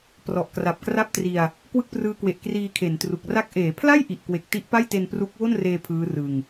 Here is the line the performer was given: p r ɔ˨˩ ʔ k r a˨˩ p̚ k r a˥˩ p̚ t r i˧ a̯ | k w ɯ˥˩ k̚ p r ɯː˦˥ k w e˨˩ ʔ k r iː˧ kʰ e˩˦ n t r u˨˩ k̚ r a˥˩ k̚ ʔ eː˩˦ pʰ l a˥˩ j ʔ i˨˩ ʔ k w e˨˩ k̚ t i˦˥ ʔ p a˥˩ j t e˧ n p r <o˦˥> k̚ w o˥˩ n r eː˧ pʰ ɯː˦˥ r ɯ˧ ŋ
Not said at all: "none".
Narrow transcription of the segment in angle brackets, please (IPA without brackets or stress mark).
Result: u˦˥